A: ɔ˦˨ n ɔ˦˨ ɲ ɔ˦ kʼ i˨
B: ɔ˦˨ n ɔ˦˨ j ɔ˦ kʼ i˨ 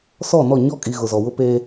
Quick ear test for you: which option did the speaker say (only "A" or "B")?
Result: A